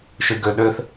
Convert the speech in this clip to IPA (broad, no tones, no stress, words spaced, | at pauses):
ʃɨɡøɗøθ